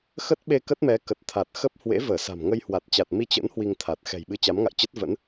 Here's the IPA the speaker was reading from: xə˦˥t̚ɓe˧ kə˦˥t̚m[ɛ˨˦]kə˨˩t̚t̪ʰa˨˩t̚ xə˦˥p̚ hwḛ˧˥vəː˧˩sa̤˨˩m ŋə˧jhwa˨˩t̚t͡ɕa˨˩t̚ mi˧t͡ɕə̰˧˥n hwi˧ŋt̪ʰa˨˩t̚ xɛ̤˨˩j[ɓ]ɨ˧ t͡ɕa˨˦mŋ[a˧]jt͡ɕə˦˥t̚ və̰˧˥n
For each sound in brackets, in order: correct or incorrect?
correct, correct, incorrect

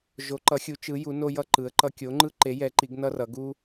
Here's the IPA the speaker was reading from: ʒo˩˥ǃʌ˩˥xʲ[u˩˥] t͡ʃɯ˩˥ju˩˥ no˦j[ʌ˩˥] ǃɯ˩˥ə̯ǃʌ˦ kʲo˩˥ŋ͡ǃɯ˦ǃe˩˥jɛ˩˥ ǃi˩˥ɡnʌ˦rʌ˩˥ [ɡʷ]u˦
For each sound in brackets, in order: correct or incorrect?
correct, incorrect, incorrect

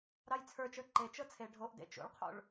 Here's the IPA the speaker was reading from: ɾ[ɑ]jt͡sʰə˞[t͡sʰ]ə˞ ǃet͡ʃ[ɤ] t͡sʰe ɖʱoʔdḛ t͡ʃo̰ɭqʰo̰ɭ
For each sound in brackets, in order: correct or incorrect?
correct, incorrect, correct

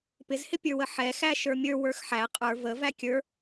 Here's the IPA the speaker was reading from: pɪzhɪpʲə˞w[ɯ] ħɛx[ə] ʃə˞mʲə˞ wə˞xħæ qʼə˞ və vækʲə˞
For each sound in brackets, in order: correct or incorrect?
incorrect, incorrect

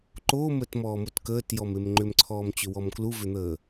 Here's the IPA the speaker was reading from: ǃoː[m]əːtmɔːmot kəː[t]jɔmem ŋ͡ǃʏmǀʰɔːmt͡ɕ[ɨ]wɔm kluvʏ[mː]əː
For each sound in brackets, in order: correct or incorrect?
correct, correct, incorrect, incorrect

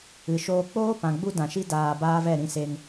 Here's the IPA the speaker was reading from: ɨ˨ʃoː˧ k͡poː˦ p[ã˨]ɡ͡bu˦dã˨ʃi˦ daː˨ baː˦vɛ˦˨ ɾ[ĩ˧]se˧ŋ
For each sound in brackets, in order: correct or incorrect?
correct, correct

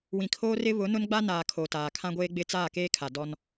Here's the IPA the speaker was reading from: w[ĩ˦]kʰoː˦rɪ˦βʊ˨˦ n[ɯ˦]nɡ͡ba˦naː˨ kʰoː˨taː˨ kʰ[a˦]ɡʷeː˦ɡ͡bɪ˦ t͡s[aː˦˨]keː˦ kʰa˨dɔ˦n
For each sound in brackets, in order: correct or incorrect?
incorrect, incorrect, incorrect, correct

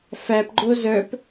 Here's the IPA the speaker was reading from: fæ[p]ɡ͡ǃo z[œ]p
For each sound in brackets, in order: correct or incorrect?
correct, correct

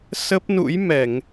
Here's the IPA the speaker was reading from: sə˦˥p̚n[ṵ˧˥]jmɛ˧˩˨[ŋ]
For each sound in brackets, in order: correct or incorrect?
correct, correct

